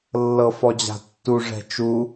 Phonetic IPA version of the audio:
lː ɤ f ɔ d͡ʑ a̤ tː u ʐ ɛ̤ t͡ʃ u

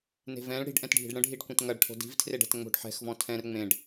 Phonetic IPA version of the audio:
n e̤ v ɛ̃ ɭ ɽ i̤ ɖ ʔ ɛ̃ t ɖʱ i̤ ɖ ɽ ə̃ ɖʱ i ɖ kʷ ẽ t ŋ ɐ ɖ ʈʰ o̤ d i̤ v tʰ r e ɖ ɛ̤ t ŋ͡m o̤ ɖ ħ ɛ̤ x v ɔ̃ tʰ ɛ̃ r ŋ͡m ẽ ɖ

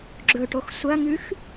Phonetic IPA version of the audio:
ɡ͡ǁ ɵ ʈ o x sʷ ɐ ŋ ʉ x

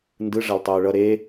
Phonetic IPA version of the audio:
n d ɯ ʐ a l tˤ uː ɭ ʌ ɾ e

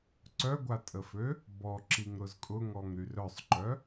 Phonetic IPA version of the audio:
ǀ œ ɡʷ a tʼ ə f ø | b ɔ ǁ i ŋ ɾ ʊ z kʼ ʊ ŋ ɔ ŋ ɾ y r œ sˤ ǃ œ

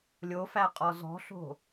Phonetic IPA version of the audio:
lʲ o f æ qʼ ɔ z ɔ̤ ɬ o̤

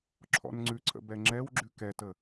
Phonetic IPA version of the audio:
ǁʰ ɔ̰ n ŋ͡ǀ ʉ ǀʰ ə̰ b ɛ ŋ͡ǁ ɛ w ɡ͡ǁ ʉ k ɛ t ə

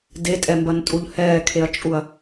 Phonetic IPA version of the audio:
d e tʼ ɛ m b ɐ n tʼ u ʎ h ɛː kʰ e ɐ̯ t͡ʃʼ u ɐ̯

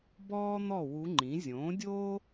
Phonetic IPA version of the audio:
b ɔː˥ n̪ ɔ˥˨ w u˧˥ ŋ͡ǃ ĩ˩˥ zʲ õː˩˥ dʲ oː˥

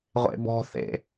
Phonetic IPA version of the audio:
ʁʷ ḛ b ɔ̤ θ ḛ

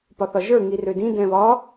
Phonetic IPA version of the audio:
p ɒ θ ɒ ʒ ə˞ ŋ i r ø d ĩ d ɛ̃ β ɒ

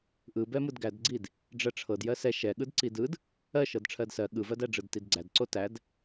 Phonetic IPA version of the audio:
ʔ ɯ b ɛ m ɯ d ɡ æ d ɡ͡ǀ i d | ɖ͡ʐ ɜ ʈ͡ʂʰ ɤ d j ɜ s ɛ ʃ ɛ ɠ ɯ d ǀ i d ɯ d | ɜ ʃ ɤ d ʈ͡ʂʰ ɜ d s ɜ ɠ ɯ v ɜ d æ ɖ͡ʐ ɯ d t i d ɡ͡ǀ æ d ǀ o t æ d

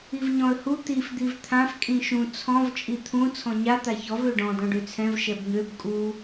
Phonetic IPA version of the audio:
i v ɲ ɔ̃ ə̯ h u t̪ i f d̪ i v t̪ʰ ã f kʼ ĩ ʃ ũ t͡sʰ ɔ̃ v t͡ʃʼ i t̪ʰ ũ t͡sʰ ɔ̃ ɲ a t̪ a ç ɔ v ø ɖ ɔ̃ d ɔ̃ ɖ ø t͡sʰ ɛ̃ v ʃ ɛ b ɲ ø b kʼ u

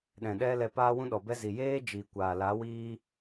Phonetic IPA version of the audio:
ɗ ɛ̃˨ ɗ ɛ˦ l ɛ˧ p aː˦ w ũ˦ ɗ ɔ˨ b ɛ˦ z i˨ j eː˦ d͡ʒ iː˨ kʷ aː˨ l a˨˦ w iː˦

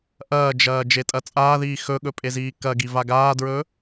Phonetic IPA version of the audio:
ʔ ɐː d͡ʒ ɐː d͡ʒ e tʼ ɐ t͡sʼ aː ð iː x ɵ ɠ ɵ pʼ e z iː k ɐ ɡ i v a ɡ aː d ɹ ɵ

